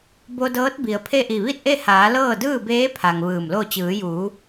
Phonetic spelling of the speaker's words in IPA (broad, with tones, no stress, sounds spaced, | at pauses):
b o˧ d ɤː˧˥ t̚ b i˩ ə̯ pʰ e˥˨ ʔ i˧˩ ʋ i˥˨ t̚ ʔ e˥˨ h aː˩˧ l ɤː˥˨ d ɯː˥˨ b eː˧˥ pʰ a˩ ŋ ʋ ɯː˧˩ m l o˥˨ t͡ɕ ɯː˩˧ j uː˩˧